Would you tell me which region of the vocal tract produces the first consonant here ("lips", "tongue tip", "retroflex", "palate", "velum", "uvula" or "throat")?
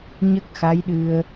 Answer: palate